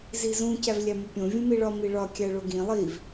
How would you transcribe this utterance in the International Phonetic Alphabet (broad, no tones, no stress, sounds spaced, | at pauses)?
z i z ũ c æ v lʲ æ m u pʲ õ vʲ ũ m i ɭ ɒ m i ɭ ɒ kʲ æ ɭ o ɡ ĩ lˠ i v